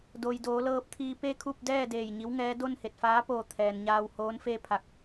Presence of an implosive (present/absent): absent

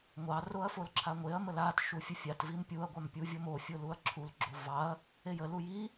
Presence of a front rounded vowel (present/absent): absent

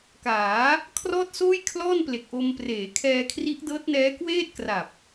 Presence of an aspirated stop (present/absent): present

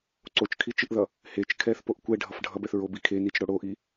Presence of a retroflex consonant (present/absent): present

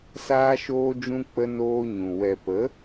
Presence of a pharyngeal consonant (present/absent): absent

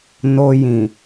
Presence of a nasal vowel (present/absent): present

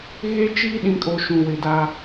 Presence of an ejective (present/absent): present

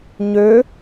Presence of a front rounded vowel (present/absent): present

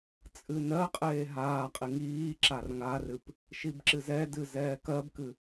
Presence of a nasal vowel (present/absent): absent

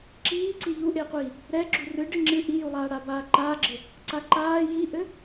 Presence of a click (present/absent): present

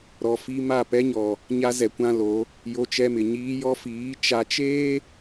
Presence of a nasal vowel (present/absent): present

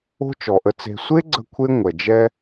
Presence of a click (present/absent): present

